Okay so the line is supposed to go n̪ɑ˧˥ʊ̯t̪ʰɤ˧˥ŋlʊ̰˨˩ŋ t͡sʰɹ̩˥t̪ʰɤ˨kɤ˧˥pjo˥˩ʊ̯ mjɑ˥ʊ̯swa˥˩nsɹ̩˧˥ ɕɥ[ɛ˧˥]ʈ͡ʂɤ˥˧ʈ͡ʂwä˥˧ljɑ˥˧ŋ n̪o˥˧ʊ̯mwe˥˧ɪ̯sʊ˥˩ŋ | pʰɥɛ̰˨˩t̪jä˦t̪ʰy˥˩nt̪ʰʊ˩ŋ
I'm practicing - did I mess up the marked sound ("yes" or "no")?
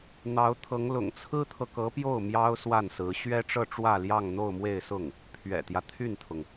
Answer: yes